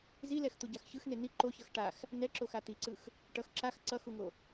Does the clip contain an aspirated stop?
no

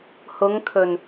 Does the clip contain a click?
no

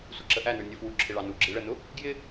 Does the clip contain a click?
yes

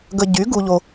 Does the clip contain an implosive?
no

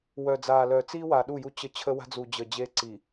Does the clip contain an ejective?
no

